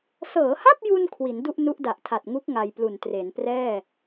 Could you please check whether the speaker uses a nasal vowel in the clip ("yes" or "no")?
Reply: no